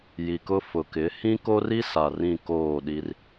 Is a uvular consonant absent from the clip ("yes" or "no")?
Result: yes